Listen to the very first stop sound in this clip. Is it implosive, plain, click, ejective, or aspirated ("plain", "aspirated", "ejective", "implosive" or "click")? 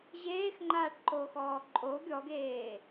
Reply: click